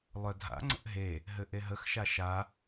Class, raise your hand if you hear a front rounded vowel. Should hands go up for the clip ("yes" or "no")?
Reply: yes